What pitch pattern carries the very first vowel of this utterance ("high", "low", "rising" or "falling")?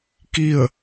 falling